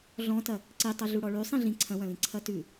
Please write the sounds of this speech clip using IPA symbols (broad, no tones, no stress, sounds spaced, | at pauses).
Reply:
ɮ ɔ̃ t ɐ | ǀ i tˤ ʌ ɮ u ɽ ɔ ɭ ʉ sˤ ĩ ɮ ĩ ǀʰ ɐ̃ w ɐ̃ l ĩ ǀʰ ɐ t ʉ